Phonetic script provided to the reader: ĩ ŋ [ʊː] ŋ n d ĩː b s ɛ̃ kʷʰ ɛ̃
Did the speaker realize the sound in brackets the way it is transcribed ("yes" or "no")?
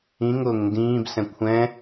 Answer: yes